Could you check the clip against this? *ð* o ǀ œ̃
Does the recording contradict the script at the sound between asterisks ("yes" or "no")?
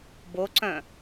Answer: yes